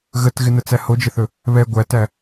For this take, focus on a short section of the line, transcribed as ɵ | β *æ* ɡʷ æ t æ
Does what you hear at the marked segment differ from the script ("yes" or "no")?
yes